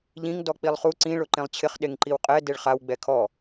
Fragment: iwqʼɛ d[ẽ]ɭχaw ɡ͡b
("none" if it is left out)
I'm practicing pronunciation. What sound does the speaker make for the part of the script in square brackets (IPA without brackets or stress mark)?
e